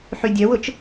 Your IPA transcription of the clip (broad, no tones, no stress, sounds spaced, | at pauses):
ħ y dʲ œ w ʊ t͡ʃ